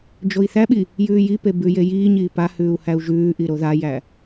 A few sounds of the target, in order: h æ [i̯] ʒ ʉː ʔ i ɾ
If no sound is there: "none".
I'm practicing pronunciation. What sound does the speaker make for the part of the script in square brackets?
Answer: u̯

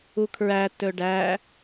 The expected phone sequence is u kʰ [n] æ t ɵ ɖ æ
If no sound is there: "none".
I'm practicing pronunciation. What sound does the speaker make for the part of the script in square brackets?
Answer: ɹ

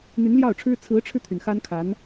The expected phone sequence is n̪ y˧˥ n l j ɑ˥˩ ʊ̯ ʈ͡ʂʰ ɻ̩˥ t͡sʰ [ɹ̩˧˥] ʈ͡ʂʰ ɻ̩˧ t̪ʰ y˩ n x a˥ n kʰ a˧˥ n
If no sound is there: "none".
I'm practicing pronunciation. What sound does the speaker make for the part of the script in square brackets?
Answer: ɹ̩˧˥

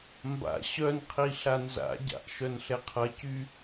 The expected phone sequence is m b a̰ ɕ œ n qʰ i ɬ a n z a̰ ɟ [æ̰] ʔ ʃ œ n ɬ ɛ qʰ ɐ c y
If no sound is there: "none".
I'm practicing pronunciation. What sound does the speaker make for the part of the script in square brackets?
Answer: a̰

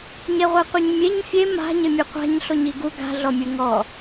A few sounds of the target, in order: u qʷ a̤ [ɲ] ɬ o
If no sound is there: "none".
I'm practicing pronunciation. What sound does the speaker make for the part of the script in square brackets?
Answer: ɲ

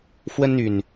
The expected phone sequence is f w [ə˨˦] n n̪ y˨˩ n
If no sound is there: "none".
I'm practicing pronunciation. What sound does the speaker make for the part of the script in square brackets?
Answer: ə˦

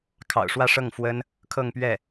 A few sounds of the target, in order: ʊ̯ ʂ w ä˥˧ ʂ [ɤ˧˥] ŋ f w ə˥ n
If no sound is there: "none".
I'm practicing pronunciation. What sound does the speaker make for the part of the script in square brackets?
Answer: ɤ˥˩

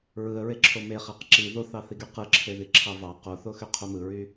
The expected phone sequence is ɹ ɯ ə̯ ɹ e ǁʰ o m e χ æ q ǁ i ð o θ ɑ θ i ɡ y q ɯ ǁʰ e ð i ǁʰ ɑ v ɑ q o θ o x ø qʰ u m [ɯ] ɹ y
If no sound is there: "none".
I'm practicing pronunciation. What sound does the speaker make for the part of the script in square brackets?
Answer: ɯ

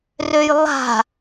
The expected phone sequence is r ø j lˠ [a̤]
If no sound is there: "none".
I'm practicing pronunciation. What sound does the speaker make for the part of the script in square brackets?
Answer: a̤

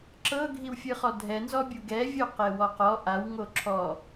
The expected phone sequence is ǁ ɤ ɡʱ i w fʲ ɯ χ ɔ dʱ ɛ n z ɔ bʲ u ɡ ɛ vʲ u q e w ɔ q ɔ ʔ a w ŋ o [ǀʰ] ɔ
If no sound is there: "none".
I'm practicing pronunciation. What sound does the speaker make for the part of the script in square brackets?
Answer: ǁʰ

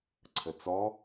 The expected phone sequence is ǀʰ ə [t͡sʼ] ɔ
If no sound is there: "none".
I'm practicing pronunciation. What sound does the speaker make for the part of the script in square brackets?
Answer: t͡s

